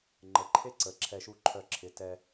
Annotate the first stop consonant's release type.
click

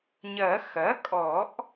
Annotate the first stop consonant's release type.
ejective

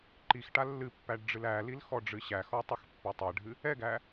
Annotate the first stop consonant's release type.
click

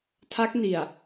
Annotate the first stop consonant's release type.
aspirated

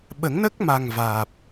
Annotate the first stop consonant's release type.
implosive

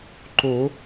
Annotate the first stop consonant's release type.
click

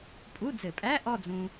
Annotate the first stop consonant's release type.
ejective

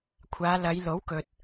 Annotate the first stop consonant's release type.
aspirated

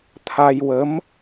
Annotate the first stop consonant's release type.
aspirated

